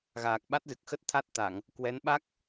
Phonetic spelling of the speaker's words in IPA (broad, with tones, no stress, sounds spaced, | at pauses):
ɣ aː˨˩ k̚ ɓ a˦˥ t̚ z ɨ˨˩ k̚ x ə˦˥ t̚ t̪ʰ a˦˥ t̚ t̪ a˧˩˨ ŋ | k w ɛ˨˦ n ɓ a˦˥ k̚